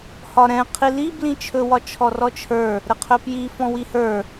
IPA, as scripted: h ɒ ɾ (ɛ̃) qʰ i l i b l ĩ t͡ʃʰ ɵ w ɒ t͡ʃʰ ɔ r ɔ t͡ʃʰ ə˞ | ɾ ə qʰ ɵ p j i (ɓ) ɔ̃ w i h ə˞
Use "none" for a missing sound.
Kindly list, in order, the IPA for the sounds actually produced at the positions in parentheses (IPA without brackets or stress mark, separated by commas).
ɛ̃, f